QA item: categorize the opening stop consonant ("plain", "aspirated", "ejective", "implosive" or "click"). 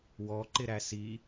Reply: click